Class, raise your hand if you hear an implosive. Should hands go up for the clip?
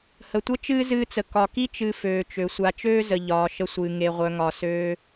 no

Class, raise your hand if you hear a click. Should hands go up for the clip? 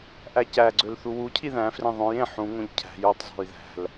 yes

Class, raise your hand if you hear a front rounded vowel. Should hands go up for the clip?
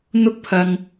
no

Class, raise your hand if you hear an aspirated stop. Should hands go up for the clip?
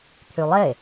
yes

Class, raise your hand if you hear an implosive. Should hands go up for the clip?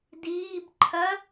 no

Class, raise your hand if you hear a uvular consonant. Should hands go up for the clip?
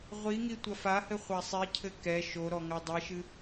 yes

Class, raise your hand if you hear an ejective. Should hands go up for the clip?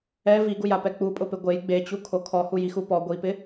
yes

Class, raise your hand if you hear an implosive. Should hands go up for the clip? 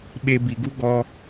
yes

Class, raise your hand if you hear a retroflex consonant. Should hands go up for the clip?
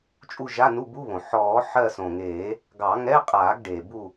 yes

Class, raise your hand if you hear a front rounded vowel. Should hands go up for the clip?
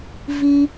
no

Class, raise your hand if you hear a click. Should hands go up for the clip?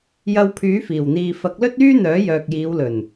no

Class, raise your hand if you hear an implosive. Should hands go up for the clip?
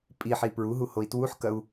no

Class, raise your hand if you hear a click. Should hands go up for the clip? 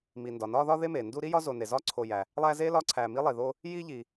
yes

